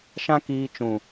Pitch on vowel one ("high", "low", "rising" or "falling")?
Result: high